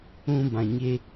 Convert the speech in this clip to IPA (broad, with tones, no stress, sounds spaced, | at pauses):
ũ˧ b ã˨ ɲ e˧